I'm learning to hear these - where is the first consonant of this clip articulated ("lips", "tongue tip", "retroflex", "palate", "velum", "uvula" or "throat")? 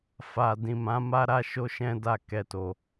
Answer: lips